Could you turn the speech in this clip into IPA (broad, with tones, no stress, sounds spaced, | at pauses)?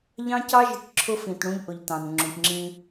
ʎ ɑ̃˦ c ɑ˦ ʒ ɪ˨ ʈ ǁʰ ʊ˦ f ĩ˨ t ɽ ũ˦ ʎ ʔ ʊ˨ ʎ t ɑ̃˨ n ŋ͡ǁ ũ˨ ʈ ŋ͡ǁ ĩ˦